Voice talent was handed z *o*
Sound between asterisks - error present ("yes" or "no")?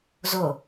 no